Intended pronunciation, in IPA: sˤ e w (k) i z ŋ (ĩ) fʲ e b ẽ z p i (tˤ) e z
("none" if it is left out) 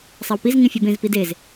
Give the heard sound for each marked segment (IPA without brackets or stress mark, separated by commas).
p, ĩ, d